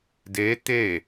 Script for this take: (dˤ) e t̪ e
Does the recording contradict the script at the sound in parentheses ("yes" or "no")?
yes